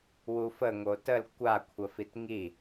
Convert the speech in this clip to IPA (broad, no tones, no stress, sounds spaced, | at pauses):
w u f ə ŋ o t ə l kʷ a kʷʰ ə f i t ŋ i